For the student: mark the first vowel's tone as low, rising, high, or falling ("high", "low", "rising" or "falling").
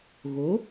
rising